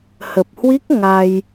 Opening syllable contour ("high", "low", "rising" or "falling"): low